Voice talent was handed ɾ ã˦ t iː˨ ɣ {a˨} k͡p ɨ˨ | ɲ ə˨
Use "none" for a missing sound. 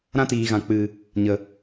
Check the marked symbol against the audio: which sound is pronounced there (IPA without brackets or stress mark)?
ã˨